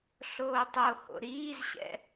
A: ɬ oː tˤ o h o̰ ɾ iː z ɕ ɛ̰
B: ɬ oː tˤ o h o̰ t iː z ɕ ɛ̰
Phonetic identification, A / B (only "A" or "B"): A